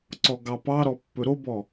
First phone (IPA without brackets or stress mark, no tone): ǀ